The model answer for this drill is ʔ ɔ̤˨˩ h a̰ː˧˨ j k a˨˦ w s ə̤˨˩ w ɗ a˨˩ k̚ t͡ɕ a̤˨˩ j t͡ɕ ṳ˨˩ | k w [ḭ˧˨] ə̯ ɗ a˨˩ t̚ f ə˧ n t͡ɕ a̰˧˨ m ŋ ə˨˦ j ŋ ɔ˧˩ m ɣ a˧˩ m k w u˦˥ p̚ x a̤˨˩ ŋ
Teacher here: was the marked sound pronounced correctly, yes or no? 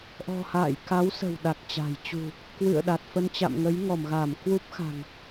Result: no